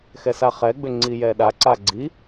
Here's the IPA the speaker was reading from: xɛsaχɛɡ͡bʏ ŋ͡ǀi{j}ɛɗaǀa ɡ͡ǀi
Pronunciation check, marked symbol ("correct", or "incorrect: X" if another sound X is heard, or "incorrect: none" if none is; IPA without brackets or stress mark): correct